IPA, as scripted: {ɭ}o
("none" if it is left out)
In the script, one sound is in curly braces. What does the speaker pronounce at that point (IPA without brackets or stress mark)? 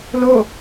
l